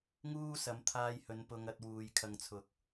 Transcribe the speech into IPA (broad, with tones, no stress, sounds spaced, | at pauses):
ŋ uː˥ s ɐ˨˧ m t̪ʰ aː˧ j h ɵ˨˧ n p ʊ˧ ŋ ɐ˧ t̚ w uː˨ j kʰ ɐ˨ ŋ t͡sʰ ʊ˨ k̚